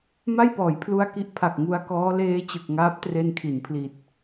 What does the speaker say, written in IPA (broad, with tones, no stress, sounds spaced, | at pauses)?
m a˥˩ j p ɔː˩˦ j pʰ l u˧ a̯ k i˦˥ ʔ pʰ a˨˩ k̚ ŋ u˧ a̯ k ɔː˦˥ l eː˦˥ t͡ɕ ɯ˨˩ k̚ ŋ aː˦˥ p̚ t r e˧ n kʰ i˩˦ n pʰ l i˨˩ t̚